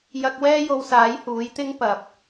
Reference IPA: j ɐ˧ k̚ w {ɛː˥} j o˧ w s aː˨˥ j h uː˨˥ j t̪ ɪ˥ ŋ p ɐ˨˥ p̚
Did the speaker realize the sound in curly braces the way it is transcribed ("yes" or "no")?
yes